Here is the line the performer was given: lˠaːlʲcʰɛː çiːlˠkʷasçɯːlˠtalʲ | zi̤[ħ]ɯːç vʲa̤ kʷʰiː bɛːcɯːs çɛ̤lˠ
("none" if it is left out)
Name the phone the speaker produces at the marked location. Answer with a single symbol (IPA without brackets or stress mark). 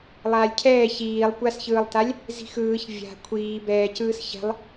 x